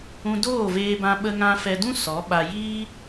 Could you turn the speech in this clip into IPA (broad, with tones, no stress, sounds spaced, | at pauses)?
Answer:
ũ˧ d oː˦˨ v eː˧ b ã˧ ɓ ə˧ ŋ ã˧ f ɛ˧ d ũ˦ s ɔ˨˦ ɓ a˧ j iː˦